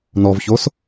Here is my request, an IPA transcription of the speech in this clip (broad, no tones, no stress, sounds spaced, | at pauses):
n ɔ v ç o s